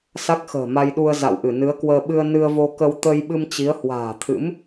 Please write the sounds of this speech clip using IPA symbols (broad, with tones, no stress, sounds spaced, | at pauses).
s a˦˥ k̚ x ə̤ː˨˩ m a˧ j ɗ u˧ ə̯ z a̰˧˨ w ʔ ɨ˧˩ n ɨ˨˦ ə̯ k w əː˧ ɓ ɨ˧ ə̯ n ɨ˧ ə̯ v o˧ k ə˧ w t̪ ə˧ j ɓ ɨ˧ m t͡ɕ i˨˦ ə̯ h w a̤ː˨˩ t̪ʰ ɨ̰˧˥ m